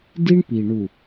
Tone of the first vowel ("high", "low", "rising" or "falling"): high